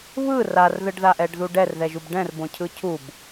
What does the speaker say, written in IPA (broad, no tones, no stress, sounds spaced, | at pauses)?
β ɯ r a r ð ɯ ɖ ð a ʔ ɛ ɖ ð u ɖ ɛ r ð ɛ ʒ u b ɖ ɛ̃ r b õ cʰ ɯ cʰ u b